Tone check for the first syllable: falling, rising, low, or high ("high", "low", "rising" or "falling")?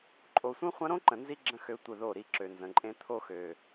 low